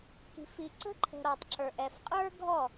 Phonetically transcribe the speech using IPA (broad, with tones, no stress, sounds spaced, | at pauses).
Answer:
k i̤˨ f i˨ ǀ ə̤˦ ǃʰ ə̤˨ ɾ ɔ˨ tˤ ǁ ə˞˨ ʔ ɛ˨ f qʼ ə˞˦ ɡʱ ɔ˦˨